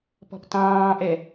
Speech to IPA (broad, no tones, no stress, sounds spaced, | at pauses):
p ɔ̤ p t ɑ̃ː ʔ ɛ